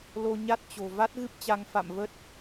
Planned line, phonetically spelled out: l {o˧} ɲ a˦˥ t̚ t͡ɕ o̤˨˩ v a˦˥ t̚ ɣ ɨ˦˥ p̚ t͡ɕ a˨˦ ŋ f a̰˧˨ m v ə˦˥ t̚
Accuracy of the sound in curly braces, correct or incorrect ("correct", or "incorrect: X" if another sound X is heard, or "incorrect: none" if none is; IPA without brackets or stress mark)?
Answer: correct